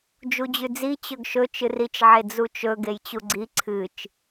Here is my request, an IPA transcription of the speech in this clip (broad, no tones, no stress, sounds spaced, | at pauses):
d͡ʒ u d͡ʑ ʉ d͡z i t͡ɕ ɵ ɡ ʃ ɵ t͡ʃ ɨ r i t͡ʃ ʕ e d͡z u t͡ʃ ɵ ɡ e j t͡ɕ u ɡ͡ǀ i ǀʰ ɨ t͡ʃ